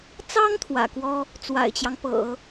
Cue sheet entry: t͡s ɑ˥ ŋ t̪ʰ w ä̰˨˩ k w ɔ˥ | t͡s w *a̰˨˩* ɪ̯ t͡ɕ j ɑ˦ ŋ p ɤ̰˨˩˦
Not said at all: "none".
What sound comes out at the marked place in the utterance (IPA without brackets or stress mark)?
a̰˨˩